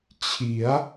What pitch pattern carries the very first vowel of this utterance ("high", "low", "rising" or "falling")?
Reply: rising